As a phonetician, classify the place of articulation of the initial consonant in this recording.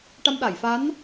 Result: retroflex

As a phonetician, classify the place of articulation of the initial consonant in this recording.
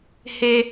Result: glottal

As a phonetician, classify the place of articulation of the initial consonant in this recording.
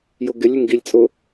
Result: palatal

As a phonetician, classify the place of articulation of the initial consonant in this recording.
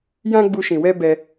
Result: palatal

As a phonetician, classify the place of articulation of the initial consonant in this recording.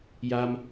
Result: palatal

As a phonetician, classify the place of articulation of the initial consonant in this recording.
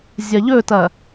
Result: alveolar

